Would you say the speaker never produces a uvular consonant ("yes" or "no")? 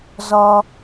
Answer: yes